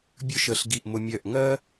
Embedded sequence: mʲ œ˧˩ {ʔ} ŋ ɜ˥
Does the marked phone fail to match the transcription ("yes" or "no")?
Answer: no